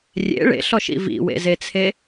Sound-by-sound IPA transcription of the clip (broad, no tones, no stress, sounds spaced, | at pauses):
rʲ ḛ ɭ ḛ ɬ ɔ ʃ ḭ v ḭ w ḛ z e t͡sʰ e